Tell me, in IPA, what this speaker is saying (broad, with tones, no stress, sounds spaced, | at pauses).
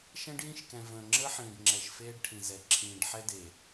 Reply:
ʃ ɛ̃˦ ɖ j ĩ˦˨ ʃ k ɛ̃˨ v ə̃ː˨ ŋ͡ǁ əː˦ ħ ĩː˨ ɖ ŋ͡ǁ ɛ˨ ʃ f eː˦ ɖ ʈʰ ĩ˨ z ɛ˨ ǁʰ ĩː˨ ɖ ħ ɛ˦ d e˨